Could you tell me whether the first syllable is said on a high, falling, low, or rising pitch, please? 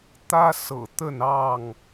high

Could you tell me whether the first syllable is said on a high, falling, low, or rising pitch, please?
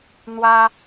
high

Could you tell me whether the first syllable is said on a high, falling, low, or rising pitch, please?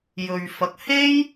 low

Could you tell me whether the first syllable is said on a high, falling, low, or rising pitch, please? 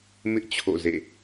high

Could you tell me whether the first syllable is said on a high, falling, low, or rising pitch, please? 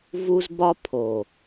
high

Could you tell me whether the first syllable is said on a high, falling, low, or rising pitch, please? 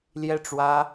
falling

